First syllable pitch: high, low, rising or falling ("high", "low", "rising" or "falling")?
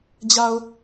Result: low